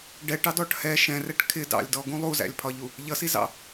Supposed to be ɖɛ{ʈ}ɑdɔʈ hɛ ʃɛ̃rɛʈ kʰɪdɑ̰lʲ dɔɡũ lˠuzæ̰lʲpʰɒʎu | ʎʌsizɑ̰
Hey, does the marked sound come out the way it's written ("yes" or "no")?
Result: yes